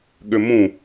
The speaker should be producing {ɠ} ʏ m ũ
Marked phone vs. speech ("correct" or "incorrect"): correct